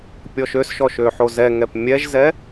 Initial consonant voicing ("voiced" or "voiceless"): voiceless